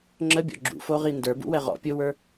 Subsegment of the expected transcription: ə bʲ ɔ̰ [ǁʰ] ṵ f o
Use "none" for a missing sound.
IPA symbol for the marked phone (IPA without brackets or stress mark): ɡ͡ǁ